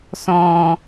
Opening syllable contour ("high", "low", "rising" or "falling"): low